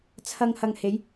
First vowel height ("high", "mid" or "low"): low